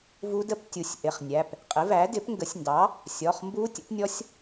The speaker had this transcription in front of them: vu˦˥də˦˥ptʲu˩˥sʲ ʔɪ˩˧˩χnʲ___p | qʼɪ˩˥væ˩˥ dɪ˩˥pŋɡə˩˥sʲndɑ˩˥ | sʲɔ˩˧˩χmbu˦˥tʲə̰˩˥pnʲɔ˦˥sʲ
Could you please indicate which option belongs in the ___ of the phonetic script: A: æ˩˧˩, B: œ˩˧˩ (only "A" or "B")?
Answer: A